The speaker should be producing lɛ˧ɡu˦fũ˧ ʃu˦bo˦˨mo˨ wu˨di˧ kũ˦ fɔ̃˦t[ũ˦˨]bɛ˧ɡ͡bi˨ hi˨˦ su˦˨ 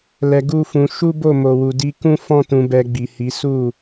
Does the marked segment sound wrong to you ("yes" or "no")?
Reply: yes